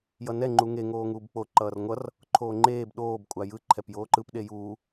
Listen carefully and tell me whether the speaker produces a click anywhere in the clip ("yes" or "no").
yes